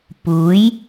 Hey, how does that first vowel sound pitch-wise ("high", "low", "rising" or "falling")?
rising